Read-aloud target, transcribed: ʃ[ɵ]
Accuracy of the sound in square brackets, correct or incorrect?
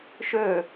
correct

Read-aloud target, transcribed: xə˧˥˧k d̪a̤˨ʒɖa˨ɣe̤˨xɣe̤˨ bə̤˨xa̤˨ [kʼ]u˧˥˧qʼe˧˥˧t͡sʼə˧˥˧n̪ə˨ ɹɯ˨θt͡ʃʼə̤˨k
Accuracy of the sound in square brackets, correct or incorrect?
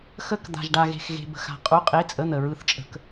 incorrect: qʼ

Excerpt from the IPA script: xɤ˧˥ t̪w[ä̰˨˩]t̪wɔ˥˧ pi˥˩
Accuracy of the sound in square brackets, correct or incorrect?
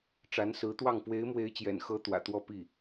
correct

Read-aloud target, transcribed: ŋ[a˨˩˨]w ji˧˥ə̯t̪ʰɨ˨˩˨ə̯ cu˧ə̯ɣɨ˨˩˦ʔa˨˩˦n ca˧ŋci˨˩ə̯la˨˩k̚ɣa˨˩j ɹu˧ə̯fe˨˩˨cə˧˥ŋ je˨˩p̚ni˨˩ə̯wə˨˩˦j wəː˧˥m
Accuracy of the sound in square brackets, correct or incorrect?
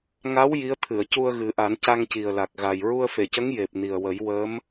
incorrect: a˧˥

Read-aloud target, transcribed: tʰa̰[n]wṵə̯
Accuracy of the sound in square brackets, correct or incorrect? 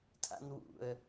correct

